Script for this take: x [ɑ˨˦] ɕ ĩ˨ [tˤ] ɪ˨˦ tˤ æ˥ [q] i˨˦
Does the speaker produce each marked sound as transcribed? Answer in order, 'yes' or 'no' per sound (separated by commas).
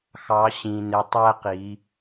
yes, no, yes